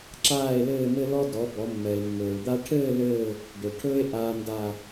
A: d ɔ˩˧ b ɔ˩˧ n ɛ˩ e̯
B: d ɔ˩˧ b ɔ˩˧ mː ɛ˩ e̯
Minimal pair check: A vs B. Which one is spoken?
B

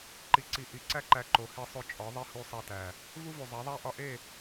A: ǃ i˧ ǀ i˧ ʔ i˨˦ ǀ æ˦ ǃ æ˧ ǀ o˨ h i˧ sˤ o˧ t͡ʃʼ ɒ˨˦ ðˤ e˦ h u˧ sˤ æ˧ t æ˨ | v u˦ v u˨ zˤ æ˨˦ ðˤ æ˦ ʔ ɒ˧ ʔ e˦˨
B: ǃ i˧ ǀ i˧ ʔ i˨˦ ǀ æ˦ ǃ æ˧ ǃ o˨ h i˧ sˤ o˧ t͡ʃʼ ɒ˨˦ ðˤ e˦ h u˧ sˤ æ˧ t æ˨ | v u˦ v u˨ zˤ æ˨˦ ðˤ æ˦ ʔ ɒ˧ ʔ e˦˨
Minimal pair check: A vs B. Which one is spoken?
B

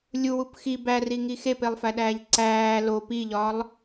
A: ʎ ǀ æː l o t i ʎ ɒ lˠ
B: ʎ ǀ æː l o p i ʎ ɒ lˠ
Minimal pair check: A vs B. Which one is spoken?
B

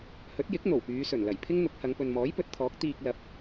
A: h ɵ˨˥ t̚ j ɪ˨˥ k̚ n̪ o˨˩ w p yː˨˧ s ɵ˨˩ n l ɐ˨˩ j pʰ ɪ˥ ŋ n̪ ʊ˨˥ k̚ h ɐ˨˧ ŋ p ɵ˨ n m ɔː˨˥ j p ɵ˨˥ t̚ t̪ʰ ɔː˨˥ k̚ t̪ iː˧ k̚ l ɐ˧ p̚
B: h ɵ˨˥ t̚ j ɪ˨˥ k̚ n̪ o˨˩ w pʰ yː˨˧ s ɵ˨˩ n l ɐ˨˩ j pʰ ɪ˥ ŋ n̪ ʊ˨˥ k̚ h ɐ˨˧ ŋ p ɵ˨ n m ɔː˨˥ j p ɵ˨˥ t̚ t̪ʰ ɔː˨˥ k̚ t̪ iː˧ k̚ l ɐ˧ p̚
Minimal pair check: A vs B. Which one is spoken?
A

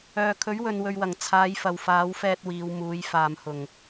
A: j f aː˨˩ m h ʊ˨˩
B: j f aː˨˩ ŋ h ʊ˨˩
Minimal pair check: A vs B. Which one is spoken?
A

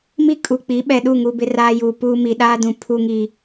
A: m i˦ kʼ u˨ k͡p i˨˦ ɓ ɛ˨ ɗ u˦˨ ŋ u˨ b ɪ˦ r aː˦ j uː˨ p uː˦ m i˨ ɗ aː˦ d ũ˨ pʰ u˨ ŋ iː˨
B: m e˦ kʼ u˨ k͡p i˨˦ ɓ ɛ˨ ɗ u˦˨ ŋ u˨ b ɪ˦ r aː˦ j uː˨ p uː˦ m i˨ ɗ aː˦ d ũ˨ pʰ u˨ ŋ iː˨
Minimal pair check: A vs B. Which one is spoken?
A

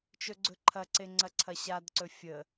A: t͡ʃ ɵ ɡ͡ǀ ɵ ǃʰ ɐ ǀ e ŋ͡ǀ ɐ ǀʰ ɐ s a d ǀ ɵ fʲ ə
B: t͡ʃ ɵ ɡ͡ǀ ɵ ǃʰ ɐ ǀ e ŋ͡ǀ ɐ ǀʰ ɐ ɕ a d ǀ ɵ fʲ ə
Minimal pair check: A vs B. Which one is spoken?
B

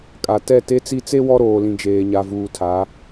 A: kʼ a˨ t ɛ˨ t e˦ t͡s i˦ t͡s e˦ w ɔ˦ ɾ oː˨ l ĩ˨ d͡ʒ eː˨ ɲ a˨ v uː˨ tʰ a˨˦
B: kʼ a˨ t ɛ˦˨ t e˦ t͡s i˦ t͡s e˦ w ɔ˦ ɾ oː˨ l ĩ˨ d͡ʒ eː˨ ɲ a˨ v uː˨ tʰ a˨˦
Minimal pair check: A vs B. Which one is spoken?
B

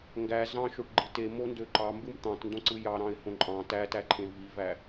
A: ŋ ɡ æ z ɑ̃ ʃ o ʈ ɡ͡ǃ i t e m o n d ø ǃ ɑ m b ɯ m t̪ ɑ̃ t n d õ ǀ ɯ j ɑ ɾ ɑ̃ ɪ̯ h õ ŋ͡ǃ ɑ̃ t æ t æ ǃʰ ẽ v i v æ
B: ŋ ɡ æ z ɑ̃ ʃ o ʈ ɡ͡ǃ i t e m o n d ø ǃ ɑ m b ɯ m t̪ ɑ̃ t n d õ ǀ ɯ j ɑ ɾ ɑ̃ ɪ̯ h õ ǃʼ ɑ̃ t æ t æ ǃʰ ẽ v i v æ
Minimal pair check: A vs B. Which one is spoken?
B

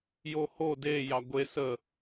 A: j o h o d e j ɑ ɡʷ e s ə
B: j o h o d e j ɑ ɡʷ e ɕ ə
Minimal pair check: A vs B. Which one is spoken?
A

